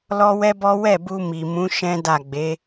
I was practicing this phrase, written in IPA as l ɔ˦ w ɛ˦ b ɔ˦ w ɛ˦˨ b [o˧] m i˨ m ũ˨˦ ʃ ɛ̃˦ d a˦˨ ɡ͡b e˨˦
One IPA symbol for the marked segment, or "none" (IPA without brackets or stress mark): u˧